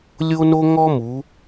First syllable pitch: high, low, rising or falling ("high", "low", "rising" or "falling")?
high